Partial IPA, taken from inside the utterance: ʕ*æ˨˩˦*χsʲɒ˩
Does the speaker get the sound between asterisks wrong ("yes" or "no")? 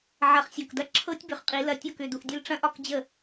yes